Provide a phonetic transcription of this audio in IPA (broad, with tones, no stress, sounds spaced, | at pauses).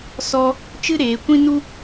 s ɔ˦ | t͡ʃ ɨ˦ ɾ eː˨˦ kʷ ĩ˦ n u˦